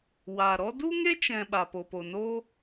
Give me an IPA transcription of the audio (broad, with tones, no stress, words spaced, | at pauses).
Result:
waː˨ɾɔ˦ du˦ŋe˦t͡ʃɛ̃˨ ɓa˨ po˨po˨no˦